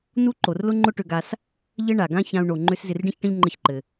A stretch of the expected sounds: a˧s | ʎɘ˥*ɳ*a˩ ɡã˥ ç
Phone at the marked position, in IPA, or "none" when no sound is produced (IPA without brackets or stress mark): ɳ